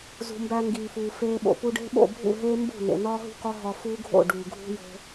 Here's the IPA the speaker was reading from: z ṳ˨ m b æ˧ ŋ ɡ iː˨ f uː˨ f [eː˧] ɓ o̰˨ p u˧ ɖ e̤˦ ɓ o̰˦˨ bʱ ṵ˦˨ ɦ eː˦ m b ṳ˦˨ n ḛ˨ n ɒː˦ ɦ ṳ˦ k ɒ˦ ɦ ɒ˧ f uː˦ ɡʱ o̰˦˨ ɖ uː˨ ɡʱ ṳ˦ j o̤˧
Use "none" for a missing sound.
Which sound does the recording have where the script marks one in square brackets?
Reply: eː˧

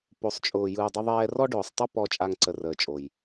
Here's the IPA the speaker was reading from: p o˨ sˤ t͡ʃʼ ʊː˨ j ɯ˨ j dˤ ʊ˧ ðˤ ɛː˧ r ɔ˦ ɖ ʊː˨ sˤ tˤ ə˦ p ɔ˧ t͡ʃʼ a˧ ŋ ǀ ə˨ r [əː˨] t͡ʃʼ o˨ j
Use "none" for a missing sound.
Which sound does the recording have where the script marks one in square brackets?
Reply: əː˨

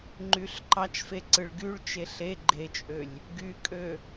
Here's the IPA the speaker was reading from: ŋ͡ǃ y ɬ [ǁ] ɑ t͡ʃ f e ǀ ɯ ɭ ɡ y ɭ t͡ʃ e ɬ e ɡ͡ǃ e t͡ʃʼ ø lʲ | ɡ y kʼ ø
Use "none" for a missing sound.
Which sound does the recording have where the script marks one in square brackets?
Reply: ǃ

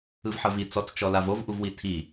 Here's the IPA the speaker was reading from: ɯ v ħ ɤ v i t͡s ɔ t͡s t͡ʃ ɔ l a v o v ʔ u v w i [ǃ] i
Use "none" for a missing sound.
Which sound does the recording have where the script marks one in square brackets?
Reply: tʰ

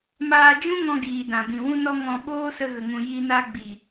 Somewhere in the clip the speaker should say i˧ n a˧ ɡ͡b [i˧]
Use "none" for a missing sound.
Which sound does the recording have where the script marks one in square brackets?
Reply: i˨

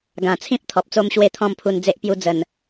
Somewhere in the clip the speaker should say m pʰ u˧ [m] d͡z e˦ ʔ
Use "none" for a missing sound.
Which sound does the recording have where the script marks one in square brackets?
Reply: n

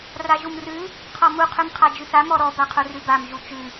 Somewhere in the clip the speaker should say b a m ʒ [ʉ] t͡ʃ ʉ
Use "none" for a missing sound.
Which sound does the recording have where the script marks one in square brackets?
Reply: u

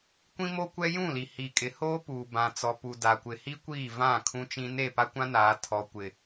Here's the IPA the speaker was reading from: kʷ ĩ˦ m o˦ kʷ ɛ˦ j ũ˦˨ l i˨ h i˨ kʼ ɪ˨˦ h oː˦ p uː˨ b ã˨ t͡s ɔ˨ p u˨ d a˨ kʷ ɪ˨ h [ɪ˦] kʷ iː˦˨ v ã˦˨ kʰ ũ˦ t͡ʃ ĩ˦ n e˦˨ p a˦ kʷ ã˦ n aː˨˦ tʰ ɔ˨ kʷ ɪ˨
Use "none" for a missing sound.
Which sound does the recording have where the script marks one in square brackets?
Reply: i˦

